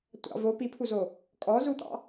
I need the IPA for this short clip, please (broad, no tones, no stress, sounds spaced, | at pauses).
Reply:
tʷ ɑ̰ v o p i pʰ u z o | kʼ ɔ z u t̪ ɑ̰